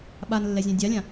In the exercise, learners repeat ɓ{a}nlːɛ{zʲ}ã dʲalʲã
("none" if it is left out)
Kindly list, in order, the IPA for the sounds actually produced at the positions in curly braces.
a, zʲ

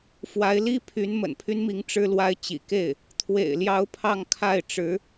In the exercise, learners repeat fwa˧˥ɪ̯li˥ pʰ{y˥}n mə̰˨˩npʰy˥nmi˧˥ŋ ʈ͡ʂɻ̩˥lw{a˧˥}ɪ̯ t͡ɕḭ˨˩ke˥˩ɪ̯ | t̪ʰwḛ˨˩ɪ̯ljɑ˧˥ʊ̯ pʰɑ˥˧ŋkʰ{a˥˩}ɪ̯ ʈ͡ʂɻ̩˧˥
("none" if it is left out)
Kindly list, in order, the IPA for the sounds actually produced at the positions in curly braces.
y˧˥, a˥, a˥˩

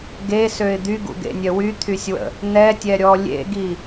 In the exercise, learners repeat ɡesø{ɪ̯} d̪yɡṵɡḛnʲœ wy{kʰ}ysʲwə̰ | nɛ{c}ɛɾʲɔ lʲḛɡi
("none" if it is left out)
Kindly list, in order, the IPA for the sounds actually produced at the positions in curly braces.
ɪ̯, t̪ʰ, tʲ

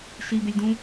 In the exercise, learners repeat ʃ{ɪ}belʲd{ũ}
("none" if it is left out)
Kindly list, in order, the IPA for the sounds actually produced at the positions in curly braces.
i, ũ

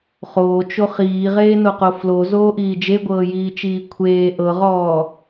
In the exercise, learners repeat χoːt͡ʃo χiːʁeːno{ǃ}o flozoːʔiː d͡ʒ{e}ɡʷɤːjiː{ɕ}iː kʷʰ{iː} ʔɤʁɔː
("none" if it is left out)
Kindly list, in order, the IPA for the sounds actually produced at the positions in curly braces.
q, e, t͡ʃ, eː

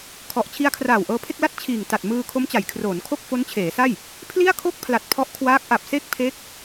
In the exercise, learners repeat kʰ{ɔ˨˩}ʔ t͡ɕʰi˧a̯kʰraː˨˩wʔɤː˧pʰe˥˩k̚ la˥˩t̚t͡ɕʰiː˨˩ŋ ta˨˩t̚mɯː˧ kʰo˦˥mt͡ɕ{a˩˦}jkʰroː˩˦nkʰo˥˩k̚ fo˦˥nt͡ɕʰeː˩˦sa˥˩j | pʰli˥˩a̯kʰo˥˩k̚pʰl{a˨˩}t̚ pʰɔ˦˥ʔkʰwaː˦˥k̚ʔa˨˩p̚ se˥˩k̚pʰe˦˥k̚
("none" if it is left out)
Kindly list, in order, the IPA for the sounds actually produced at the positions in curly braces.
ɔ˨˩, a˩˦, a˨˩

